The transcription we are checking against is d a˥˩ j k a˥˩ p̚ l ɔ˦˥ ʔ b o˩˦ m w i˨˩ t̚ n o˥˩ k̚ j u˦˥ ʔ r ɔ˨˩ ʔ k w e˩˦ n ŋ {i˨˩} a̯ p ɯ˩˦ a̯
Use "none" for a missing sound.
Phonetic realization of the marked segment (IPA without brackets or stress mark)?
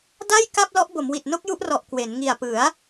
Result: i˨˩